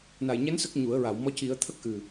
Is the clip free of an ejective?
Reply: yes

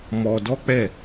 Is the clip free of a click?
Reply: yes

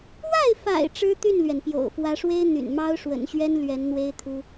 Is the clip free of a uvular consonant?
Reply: yes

